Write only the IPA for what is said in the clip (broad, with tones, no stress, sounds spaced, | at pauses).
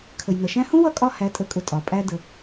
kʰ ə˨ j n ʌ˨ ʃ æ̃˦ h ũ˦ w ʌ˦˨ kʼ ɒ˧ h æ˨˦ tʼ ə˨˦ kʼ ʊ˨ tʼ ɒ˨ pʼ æ˦ d ə˧